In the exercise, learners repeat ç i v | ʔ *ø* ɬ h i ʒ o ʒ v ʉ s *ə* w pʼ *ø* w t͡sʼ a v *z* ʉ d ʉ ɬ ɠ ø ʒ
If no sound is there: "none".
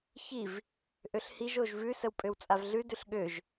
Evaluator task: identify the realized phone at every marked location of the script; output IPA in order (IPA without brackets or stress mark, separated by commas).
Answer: ø, ə, ø, ɮ